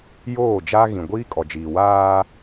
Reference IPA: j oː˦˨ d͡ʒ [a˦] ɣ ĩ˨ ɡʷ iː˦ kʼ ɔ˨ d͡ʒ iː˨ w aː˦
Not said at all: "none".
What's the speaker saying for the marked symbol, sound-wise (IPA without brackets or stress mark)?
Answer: a˦